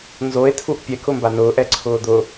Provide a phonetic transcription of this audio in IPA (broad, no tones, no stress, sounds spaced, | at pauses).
n z o e̯ tʰ u ʔ pʲ ɛ k ʊ m b a n ʊː ʔ ɛ ǀʰ ʊː d̪ ʊ